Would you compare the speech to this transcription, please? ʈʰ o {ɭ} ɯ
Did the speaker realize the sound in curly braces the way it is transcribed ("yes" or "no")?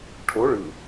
yes